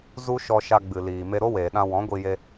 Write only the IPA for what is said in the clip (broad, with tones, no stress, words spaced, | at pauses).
zu˦ʃɔ˧ʃa˧ ɡ͡bɨ˨liː˨ me˧ɾo˦weː˨ɗã˧ wɔ̃˨˦ɡʷi˧je˧